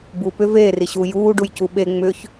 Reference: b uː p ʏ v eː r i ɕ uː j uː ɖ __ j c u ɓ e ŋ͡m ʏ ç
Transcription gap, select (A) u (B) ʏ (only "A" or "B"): A